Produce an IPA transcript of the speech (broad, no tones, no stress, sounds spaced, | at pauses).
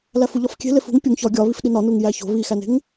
l æ f u ʎ ɒ f kʲ e̤ l e f ṳ ŋ pʲ u ŋ ç ɒ ɡʲ ɒ β i f ɗ i n ɒ n u ŋ j æ ç o̤ β i x æ n e̤ ŋ